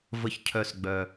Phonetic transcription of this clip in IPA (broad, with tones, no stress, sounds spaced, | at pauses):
v ə˨ ç cʰ œ˨ s ɡ͡b œ˨